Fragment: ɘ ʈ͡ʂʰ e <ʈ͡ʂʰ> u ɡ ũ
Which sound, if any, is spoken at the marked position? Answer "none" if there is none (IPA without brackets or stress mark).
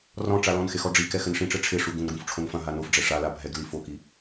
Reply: ʂ